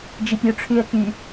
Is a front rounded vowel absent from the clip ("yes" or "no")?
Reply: no